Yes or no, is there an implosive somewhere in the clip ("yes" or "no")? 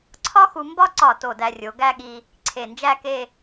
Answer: yes